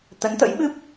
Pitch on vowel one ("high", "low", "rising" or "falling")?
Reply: rising